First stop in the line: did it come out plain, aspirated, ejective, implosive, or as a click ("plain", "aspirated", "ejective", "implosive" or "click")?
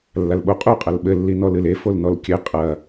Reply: implosive